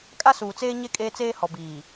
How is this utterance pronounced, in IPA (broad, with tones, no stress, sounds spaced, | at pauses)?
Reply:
kʼ a˦ s uː˨ t͡s eː˦ ɲ e˦ kʼ eː˦ t͡s eː˦ h ɔ˨ b iː˨